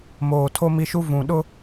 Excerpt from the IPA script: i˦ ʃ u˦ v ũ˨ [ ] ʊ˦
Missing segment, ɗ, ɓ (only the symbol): ɗ